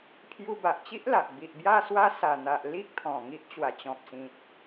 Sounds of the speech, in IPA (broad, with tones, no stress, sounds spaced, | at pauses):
pʰ j u˧ b a˨ ʔ t͡ɕ i˦ ʔ l a˨ ʔ b i˨ ʔ b j a˥˧ s w a˦ s a˨˩ n̪ a˨ ʔ l i˦ k̚ t̪ʰ ɔ̃˨˩ ŋ i˦ ʔ t͡ɕ w a˨˩ t͡ɕ ɔ̃˨ p̚ s ĩ˨ t̚